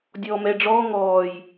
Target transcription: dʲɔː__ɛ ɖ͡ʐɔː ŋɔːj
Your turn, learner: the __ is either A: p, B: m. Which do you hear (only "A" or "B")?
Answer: B